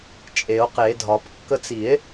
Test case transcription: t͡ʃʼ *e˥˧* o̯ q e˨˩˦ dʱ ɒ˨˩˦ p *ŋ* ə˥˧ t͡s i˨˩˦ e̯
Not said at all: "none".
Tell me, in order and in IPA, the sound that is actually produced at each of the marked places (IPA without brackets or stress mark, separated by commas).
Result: e˨˩˦, kː